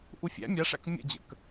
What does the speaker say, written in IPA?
ʔ u fʲ æ̰ mʲ a ʂ æ̰ k mʲ ə̰ d͡ʑ ə̰ k

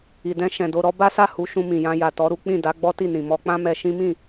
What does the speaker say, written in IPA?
i˨ d ɛ̃˧ ʃ ɛ̃˨ d o˧ ɾ ɔ˦ b a˦ s a˦˨ h u˧ ʃ ũ˧ m ĩ˨ j ã˧ j a˨ t ɔ˨˦ ɾ u˦ k͡p ĩ˦˨ d a˨˦ ɡ͡b ɔ˦ t i˦˨ n ĩ˨ m ɔ˧ k͡p ã˦ m ɛ˧ ʃ ĩ˦ m ĩ˦˨

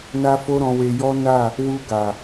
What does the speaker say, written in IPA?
n a˧ f o˦ ɾ ɔ̃˧ w e˧ j ɔ˦ n a˦˨ | w u˧ ɡ a˨

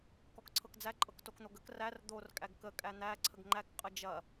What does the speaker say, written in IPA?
k ɔ k ǀʰ ɤ k d͡z æ ǃʼ ɤ k t o k n̪ o ɡ ə k r æ r d̪ o r kʼ æ ɡ k ə kʼ æ n̪ æ ǀʰ ə ɡ ŋ͡ǃ æ k qʼ ə d͡ʒ ɐ

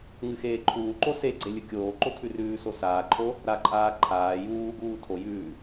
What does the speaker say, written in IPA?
ŋ ɨ x eː ǃʰ uː ǃ o s e ɡ͡ǀ e lʲ ɨ kʲ oː ǃ o tʰ ʉ r ʉː s o s aː ǃʰ o | ɾ a ǃʼ aː ǃʰ aː j uː ɡ uː tʰ o j ʉː

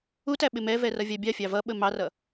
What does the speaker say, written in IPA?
u t æ ɓ ɪ m ɛ v ɛ r ʌ vʲ ɑ bʲ ɑ fʲ ɑ v ʌ ɓ ə m ɑ r ʌ

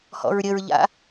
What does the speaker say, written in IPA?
h ɔ̰ ɹ ɾʲ ə ɹ ʎ a̰

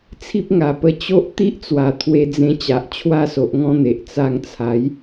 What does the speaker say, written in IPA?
t͡sʰ i˦ p̚ ŋ a˨˩ p ə˧ t͡ɕ o˦ ʔ t̪ i˦ ʔ t͡s w a˨˩ t̪ʰ w e˧ d͡z ẽ˧ t͡ɕ a˨ ʔ t͡ɕʰ w a˦ s o˨ ʔ ŋ ɔ̃˦ n̪ e˨ ʔ t͡s a˧ ŋ t͡sʰ a˨˦ j

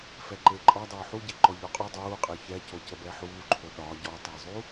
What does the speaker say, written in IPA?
f ɛ ǃ e ǃʼ ɒ dˤ oː ħ u ɟ e ǃ ɔ ʎ ɔ qʼ u dˤ uː qʼ e ç ɛ c o c ə b ɛ ħ uː ǃʰ o ɗ ɒ ɟ ɔ tˤ ɛ zˤ u

